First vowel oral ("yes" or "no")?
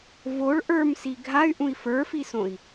yes